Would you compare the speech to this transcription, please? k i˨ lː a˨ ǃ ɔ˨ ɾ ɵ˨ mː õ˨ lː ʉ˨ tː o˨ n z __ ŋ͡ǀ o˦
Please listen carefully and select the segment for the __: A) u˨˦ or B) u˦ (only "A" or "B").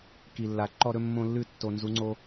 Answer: A